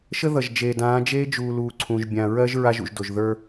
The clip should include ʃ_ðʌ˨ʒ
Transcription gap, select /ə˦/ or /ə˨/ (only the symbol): ə˦